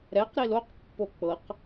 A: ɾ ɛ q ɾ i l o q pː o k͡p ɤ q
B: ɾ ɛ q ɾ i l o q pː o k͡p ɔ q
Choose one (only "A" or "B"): A